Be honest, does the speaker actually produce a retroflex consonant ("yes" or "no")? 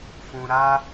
no